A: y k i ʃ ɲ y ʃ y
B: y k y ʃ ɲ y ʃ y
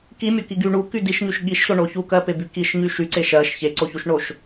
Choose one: A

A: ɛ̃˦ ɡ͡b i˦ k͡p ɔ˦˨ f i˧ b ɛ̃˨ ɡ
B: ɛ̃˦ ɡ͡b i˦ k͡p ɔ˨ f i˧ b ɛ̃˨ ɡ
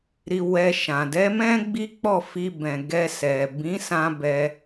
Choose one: A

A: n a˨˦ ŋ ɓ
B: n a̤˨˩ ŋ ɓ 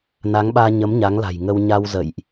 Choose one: A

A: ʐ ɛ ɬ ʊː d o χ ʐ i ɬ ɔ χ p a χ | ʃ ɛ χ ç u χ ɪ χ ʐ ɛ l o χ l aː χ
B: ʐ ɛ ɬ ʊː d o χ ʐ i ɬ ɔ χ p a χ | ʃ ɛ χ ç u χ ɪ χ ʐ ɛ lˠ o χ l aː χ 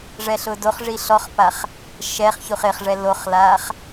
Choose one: A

